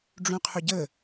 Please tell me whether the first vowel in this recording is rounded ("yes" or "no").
yes